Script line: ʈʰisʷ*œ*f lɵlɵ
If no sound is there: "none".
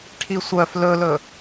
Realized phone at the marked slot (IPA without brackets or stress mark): œ